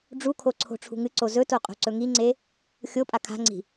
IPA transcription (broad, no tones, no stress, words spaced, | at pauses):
ɖ͡ʐukʰo ǀʰo̤ʈ͡ʂʰṳŋɨǀo zɵto qʼo̤ǀɵŋiŋ͡ǀe | xʲopʼa kʰa̤ŋ͡ǀi̤